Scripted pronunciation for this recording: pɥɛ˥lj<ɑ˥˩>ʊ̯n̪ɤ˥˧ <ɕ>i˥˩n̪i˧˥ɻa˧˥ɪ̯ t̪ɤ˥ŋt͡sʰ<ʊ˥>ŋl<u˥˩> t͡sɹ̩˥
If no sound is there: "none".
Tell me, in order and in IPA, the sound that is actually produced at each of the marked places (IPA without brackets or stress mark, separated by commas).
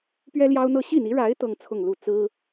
ɑ˥, ɕ, ʊ˥˧, u˥˩